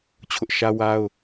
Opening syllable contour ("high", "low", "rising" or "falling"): high